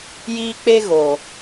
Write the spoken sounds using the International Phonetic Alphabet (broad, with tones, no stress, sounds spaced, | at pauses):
j iː˦ k͡p e˦ ɣ oː˨